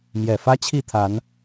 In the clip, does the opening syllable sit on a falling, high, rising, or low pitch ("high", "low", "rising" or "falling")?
low